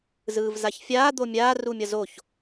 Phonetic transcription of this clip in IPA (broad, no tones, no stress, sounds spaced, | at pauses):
z ɯː v z a ç fʲ aː d̪ o mʲ aː r u mʲ ʌ z o ç